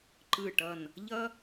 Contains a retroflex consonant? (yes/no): yes